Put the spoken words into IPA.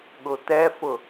ɠ ʊ t̪ ɛ f ʊ

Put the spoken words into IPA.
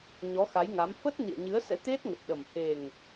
ɲ ɔ˨˦ x a˨˦ j ŋ a˨˦ m f ə˦˥ t̚ n ḭ˧˨ ə̯ ɲ ɨ˨˦ ə̯ s ɛ̰˧˥ t̪ e˦˥ t̚ ŋ ə˨˩ t̚ ɗ ə˨˩ m h e˨˩ ŋ

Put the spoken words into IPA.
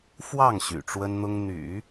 f w ɑ˥˩ ŋ ɕ y̰˨˩ ʈ͡ʂ w ə˥ n n̪ ʊ˥ ŋ n̪ y̰˨˩˦

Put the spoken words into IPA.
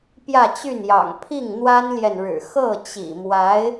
p j ä˥˧ t͡ɕ y˥˩ n j ɑ̰˨˩ ŋ pʰ i˥˩ ŋ n̪ w a˥ n l j ɛ˨ n ɻ ɻ̩˨˩ x ɤ˥˩ t͡ɕ ḭ˨˩ m w a˧˥ ɪ̯

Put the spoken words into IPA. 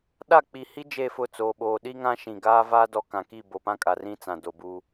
ɗ a˦˨ k͡p i˨ h i˦ d͡ʒ e˦˨ f ʊ˦˨ t͡s oː˨ ɓ oː˨ ɗ i˦ ŋ ã˦ ʃ ĩ˨ ɡ aː˦ v aː˦ d ɔ˦ k ã˨ k i˦˨ b o˨ p ã˦ kʼ a˨ r ĩ˦ t͡s ã˨ d o˨ b uː˦

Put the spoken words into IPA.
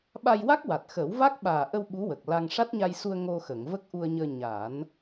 ɓ a˧ j w a˦˥ k̚ w a˨˩ t̚ x ə˨˩˦ w v a˦˥ k̚ ɓ aː˨˩ ʔ ə˧ w ɓ u˧˥ w əː˨˩ k̚ l a˧ ŋ ʂ a˦˥ t̚ ɲ a˧ j s u˧ ə̯ ŋ o˧ x ə˨˩˨ ŋ v ə˦˥ k̚ ʔ u˧ ə̯ ɲ əː˧ ɲ aː˨˩˦ n

